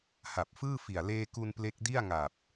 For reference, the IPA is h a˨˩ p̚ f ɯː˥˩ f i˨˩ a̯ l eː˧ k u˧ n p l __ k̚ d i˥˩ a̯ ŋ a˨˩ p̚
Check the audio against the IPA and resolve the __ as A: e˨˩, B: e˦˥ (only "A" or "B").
B